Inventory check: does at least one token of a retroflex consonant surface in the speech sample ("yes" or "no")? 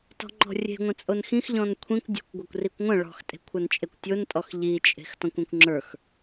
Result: yes